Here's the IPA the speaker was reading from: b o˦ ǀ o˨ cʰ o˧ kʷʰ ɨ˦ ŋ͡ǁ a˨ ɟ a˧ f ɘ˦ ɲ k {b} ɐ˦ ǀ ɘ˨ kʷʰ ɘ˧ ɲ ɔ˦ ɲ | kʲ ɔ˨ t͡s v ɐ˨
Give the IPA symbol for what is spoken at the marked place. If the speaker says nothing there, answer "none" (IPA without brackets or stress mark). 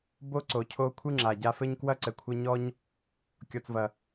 w